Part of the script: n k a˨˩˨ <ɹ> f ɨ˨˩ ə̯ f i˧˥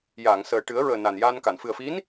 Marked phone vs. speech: incorrect: n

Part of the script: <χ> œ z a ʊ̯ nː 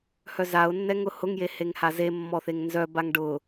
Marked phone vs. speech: incorrect: h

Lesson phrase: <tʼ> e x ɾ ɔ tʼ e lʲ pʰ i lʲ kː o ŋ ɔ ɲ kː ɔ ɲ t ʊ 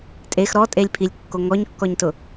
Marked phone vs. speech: correct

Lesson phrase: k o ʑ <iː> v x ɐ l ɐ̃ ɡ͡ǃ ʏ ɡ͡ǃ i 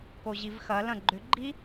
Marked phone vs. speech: incorrect: i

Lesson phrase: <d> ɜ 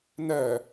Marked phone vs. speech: incorrect: n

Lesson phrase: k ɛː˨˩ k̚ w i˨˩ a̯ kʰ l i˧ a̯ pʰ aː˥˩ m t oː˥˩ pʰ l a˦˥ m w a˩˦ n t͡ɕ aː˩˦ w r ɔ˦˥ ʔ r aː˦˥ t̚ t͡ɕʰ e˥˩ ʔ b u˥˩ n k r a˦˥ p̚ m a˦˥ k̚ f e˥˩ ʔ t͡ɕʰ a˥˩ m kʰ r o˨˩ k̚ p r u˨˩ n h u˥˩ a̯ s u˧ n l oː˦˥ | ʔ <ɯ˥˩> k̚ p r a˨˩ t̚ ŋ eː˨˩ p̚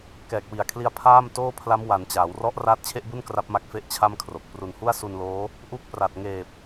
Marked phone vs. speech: incorrect: u˥˩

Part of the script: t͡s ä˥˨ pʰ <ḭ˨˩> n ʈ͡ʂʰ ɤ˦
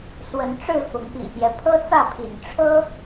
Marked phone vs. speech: correct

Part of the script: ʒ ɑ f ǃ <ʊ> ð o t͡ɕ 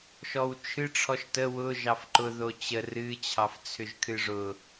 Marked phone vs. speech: correct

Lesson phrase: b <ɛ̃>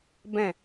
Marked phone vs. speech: correct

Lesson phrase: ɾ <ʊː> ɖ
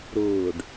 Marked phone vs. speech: correct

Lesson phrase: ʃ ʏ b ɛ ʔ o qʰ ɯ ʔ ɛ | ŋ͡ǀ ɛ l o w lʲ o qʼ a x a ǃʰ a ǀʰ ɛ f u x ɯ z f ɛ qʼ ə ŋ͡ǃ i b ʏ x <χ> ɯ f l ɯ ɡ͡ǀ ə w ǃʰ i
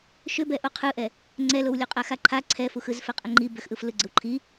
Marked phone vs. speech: incorrect: ʔ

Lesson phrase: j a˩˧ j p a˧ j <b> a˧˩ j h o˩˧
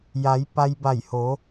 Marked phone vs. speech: correct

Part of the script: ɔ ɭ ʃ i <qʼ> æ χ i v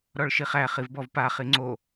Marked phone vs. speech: incorrect: χ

